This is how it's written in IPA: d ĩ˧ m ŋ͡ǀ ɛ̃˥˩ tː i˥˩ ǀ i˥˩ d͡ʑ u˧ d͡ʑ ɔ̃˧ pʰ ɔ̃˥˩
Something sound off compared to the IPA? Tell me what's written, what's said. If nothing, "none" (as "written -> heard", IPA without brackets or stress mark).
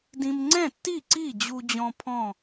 none